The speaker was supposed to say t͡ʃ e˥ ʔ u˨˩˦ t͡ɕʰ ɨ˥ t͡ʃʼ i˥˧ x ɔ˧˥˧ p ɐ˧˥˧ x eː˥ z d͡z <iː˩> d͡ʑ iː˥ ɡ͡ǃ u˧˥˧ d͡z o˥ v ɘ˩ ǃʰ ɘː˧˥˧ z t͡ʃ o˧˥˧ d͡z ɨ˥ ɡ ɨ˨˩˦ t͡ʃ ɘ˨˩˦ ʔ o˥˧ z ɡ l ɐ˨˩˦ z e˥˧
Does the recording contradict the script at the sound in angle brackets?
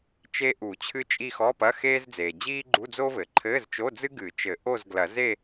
yes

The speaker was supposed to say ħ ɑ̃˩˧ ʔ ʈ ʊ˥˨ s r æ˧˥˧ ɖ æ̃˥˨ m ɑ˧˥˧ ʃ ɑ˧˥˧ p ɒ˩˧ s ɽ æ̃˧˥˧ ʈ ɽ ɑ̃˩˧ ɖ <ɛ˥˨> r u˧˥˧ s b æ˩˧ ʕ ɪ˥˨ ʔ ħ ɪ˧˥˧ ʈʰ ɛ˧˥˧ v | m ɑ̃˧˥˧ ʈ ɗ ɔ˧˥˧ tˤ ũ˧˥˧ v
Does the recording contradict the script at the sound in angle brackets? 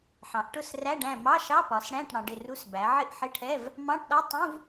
yes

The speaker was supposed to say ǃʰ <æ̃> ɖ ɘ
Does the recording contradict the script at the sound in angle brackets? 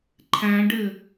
no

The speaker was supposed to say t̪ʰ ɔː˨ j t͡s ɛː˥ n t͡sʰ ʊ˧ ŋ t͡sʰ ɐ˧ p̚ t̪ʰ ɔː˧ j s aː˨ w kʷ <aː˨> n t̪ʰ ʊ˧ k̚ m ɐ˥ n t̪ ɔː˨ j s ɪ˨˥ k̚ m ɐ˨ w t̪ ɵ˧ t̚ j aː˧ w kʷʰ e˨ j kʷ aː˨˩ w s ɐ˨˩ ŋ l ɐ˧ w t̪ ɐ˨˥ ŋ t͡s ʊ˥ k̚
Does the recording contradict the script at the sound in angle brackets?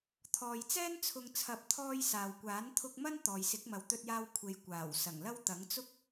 yes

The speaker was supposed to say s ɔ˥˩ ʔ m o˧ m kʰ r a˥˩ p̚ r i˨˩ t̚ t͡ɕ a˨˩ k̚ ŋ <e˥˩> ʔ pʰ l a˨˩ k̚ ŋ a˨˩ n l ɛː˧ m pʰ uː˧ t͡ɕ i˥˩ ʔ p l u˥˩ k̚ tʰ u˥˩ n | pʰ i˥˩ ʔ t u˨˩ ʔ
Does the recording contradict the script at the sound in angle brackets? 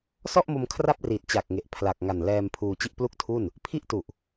yes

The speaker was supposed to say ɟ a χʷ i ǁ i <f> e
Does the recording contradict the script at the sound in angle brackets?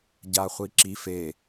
no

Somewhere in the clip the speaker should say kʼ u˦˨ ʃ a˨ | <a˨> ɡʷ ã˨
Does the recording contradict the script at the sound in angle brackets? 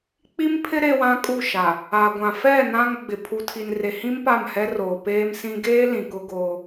no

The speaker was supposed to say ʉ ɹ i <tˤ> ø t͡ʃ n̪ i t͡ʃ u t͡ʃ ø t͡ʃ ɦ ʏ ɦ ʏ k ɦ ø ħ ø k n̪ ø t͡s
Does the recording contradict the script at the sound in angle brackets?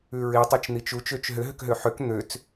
no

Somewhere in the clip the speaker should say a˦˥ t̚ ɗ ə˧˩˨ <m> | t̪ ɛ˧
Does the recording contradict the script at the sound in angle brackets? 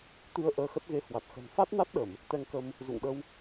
no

